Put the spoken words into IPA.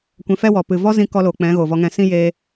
kʷ ɛ̃˧ f ɛ˦ w ɔ˨ p ɨ˨ v ɔ˦ z ĩ˧ k ɔ˧ l oː˨ k͡p ɛ̃˨˦ ɣ oː˨ v ɔ˧ ŋ ɛ̃˧ s ĩ˦ j eː˧

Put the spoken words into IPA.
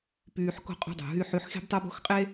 p yː˧ ħ k o̤˦ qʼ o̤˦ dˤ ṳ˨ ɦ y˧ ħ y˧ ħ x e̤˦ b tˤ o˦ b o̤˦ x qʼ e˦

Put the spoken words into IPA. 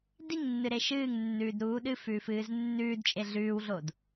d i ŋ nː ɨ ɾ e ʃ ɨː ŋ nː ʉː d ɾ uː ɗ ɨ f ʉː f ɨː z nː ʉː d t͡ʃʼ e ɮ ʉː w ɮ o d

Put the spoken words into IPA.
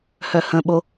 h œ h ə̃ ɓ o

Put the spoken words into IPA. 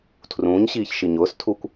tʰ r ũː ɲ ɕ iː ç ʃ i ɲ ʊː s tʰ u kʷ

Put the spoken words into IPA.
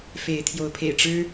f e˨˦ ɪ̯ t̪ʰ j o˨˦ ʊ̯ pʰ ḛ˨˩ ɪ̯ ʈ͡ʂ ɻ̩˦

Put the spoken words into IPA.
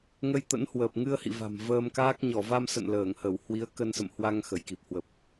ŋ ə˧ j t̪ ə̰˧˥ n h w əː˨˩ p̚ ŋ ɨ˧ ə̯ h ḭ˧˨ v a̤˨˩ m v əː˧ m k aː˦˥ k̚ ɲ ɔ˧˩ v a˧ m s ə̰˧˨ n l əː˧˩ ŋ h ə˧˩ w h w i˨˦ ə̯ k ə˧ n s ə̰˧˨ m h w a˧ ŋ x ə˧˩ j k i˨˩ p̚ h w ə˨˩ p̚

